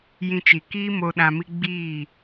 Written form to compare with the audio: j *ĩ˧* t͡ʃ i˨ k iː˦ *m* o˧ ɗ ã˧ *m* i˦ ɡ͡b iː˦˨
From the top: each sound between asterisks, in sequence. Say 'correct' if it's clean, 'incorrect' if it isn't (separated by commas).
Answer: correct, correct, correct